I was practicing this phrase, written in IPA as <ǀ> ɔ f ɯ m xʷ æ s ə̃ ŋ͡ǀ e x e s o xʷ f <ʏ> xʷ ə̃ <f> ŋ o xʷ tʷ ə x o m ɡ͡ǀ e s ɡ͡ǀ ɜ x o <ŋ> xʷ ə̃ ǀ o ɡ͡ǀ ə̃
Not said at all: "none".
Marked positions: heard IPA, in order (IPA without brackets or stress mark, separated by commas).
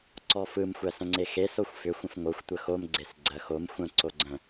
ǀ, ʏ, f, m